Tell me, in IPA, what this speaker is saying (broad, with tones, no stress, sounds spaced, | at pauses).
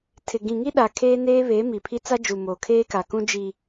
tʰ ɪ˨ ɡ ĩ˨ ŋ i˦ ɗ a˨ kʰ eː˦ n eː˦ β eː˨˦ m i˨ pʰ i˦ t͡s a˦ d͡ʒ u˨ m oː˨ kʰ eː˦ k a˨ k ũ˦ d͡ʒ i˨